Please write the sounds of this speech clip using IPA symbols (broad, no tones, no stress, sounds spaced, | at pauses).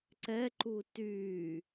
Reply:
ǀ ɛ ǃ u t yː